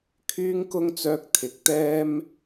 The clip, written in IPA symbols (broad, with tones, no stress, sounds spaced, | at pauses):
kʰ yː˥ ŋ k ʊ˥ ŋ t͡s œː˧ k̚ t̪ʰ ɪ˨˥ k̚ t̪ ɛː˥ m